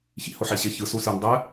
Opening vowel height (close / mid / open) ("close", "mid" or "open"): close